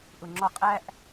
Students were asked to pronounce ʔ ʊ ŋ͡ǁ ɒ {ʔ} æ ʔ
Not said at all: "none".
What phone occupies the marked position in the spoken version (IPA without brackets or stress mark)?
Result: qʼ